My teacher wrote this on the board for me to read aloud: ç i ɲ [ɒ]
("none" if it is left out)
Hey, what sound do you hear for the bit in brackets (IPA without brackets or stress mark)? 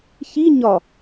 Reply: ɒ